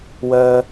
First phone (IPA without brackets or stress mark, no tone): w